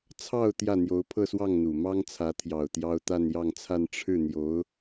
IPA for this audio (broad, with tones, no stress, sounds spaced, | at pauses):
t͡sʰ ɑ˥˧ ʊ̯ t̪ j ä˥˩ n̪ j o˧˥ ʊ̯ pʰ ɤ˥˧ s w ɑ˥˩ ŋ n̪ u˨˩ m ɑ˥ ŋ t͡sʰ ä˧˥ t̪ʰ j ɑ˨˩ ʊ̯ t̪ j ɑ˥ ʊ̯ t̪ a˥˧ n j ɑ˥˧ ŋ t͡sʰ a˥˧ n ʈ͡ʂʰ ɻ̩˥˩ n̪ j o˧˥ ʊ̯